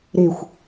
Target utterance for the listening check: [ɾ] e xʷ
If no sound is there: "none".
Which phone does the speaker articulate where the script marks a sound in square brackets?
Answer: ɾ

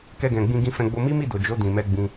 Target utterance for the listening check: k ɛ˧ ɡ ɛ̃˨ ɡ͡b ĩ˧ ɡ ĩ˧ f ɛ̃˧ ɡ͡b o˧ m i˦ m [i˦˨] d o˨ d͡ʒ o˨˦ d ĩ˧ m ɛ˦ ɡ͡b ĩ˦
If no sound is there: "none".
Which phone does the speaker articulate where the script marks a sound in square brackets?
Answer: i˦˨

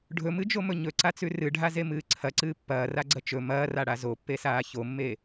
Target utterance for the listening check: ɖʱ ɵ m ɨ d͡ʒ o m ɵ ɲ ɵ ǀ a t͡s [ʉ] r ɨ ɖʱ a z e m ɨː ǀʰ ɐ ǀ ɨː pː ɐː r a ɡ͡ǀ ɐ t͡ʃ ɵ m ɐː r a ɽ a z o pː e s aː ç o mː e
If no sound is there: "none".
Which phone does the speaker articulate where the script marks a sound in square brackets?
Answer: ʉ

